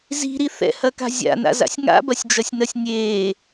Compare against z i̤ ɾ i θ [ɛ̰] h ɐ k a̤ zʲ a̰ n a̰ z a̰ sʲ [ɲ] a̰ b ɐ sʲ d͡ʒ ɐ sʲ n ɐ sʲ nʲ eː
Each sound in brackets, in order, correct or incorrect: correct, incorrect: ŋ

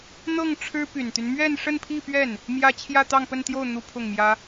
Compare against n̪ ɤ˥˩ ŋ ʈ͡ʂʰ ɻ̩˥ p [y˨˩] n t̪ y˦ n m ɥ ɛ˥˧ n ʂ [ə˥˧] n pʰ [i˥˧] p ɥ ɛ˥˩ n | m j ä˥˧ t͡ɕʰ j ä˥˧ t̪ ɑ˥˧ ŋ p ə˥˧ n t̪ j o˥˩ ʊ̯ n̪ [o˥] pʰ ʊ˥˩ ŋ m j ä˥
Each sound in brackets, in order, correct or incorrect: correct, correct, correct, incorrect: u˥

